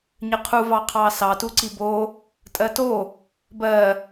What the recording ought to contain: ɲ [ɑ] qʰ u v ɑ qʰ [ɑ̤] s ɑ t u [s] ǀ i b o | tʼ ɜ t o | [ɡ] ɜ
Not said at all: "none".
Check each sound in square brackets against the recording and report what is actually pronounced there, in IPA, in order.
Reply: ə, ɑ, none, b

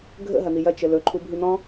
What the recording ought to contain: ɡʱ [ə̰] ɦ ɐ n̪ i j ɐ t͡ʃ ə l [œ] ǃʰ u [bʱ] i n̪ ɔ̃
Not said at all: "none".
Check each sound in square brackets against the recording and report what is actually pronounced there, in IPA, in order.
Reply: ə̰, ɵ, bʱ

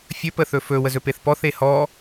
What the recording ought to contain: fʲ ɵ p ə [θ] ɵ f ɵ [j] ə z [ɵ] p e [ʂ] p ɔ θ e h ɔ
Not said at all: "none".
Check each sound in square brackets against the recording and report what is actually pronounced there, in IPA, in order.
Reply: θ, w, ɵ, θ

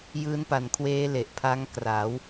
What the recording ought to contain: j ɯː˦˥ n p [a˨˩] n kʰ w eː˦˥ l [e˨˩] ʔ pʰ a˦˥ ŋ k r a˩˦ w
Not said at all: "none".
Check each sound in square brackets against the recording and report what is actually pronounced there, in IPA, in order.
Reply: a˨˩, e˨˩

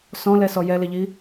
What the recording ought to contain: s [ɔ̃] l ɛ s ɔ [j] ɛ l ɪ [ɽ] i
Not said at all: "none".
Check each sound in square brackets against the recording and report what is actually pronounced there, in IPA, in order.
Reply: ɔ̃, j, ʎ

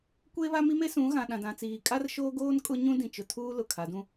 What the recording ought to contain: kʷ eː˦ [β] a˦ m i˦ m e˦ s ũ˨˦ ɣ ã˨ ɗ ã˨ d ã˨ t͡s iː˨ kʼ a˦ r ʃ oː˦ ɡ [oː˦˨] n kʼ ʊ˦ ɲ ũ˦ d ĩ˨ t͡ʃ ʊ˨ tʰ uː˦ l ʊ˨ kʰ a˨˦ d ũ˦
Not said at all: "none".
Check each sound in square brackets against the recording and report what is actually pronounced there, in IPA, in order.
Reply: β, oː˦

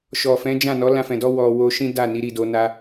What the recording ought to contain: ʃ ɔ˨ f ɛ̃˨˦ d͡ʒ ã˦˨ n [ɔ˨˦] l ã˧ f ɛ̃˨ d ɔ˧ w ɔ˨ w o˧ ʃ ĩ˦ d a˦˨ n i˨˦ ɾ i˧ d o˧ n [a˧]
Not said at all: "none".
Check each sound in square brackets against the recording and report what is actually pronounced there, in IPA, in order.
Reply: ɔ˨˦, a˧

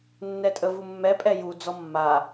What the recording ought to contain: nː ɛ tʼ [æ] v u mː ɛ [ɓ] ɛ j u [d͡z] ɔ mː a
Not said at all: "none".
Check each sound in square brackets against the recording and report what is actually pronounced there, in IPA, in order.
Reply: ə, pʼ, d͡z

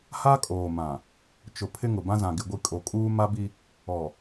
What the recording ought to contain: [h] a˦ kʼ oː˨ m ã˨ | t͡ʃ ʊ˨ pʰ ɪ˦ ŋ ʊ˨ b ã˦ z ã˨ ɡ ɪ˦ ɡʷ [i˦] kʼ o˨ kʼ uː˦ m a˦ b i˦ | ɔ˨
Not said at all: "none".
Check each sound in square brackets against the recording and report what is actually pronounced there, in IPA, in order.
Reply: h, i˦

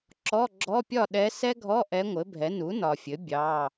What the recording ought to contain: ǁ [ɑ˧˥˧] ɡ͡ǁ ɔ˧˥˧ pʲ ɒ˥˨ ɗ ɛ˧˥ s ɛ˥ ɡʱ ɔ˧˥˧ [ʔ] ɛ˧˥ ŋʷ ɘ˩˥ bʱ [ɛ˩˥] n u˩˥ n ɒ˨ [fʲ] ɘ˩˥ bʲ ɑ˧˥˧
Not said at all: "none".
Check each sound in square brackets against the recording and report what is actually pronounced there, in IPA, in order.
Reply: ɔ˧˥˧, ʔ, ɛ˩˥, fʲ

